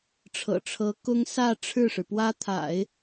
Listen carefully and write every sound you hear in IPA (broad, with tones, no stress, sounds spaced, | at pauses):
ʈ͡ʂʰ ɤ̰˨˩ ʈ͡ʂʰ ɤ˧˥ k ʊ˥ ŋ s ä˥˧ ʈ͡ʂʰ ɻ̩˥˩ ʂ ɻ̩˩ p w ä˥ t̪ʰ a̰˨˩˦ ɪ̯